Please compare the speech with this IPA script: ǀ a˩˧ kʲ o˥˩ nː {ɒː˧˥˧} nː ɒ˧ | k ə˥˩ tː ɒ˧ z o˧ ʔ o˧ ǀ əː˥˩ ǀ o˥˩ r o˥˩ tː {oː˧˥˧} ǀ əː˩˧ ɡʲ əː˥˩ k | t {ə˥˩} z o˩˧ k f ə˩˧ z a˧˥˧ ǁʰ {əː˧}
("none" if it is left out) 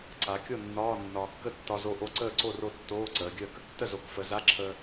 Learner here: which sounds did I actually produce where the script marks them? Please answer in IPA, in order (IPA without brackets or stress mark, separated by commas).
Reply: ɒː˧˥˧, oː˧˥˧, ə˥˩, əː˧